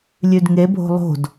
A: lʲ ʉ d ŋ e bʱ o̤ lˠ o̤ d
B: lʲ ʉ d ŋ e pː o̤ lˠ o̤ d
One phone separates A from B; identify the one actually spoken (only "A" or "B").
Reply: A